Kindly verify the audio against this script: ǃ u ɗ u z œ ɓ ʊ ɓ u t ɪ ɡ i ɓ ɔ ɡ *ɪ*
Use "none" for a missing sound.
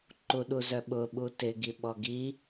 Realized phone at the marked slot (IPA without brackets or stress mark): i